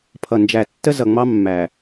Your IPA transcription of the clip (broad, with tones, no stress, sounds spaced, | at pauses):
pʰ ʌ˨ n d͡ʒ æ˨ tː ə˦ z ʌ˨ ŋ͡m ɑ˦ mː æ˨